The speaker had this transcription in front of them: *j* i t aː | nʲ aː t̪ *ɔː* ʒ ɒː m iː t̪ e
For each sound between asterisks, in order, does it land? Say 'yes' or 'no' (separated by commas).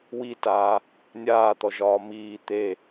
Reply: no, no